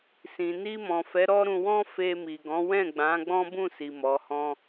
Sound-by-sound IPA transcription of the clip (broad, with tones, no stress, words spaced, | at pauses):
sĩ˨ ni˧mɔ̃˨fɛ˨˦ ɾɔ˦ɾũ˧wɔ̃˦ fe˧mi˨ɡɔ̃˨˦ wɛ̃˦˨ɡ͡bã˨˦ ɡ͡bɔ̃˦bũ˦˨si˨ mɔ˨˦hɔ̃˦